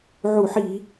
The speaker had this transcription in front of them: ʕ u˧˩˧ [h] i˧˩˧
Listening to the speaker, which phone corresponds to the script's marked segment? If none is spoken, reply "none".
ħ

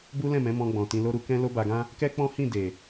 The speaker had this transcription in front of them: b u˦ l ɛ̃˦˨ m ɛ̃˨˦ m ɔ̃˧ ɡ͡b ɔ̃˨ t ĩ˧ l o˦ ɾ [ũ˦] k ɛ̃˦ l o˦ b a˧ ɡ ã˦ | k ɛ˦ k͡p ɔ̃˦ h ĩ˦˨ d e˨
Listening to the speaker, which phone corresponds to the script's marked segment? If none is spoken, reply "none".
u˦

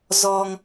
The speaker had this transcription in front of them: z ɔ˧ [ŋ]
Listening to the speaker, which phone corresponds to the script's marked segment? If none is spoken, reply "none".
ŋ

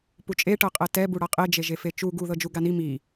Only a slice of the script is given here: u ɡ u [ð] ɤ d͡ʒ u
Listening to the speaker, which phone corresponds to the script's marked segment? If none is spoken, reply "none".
ð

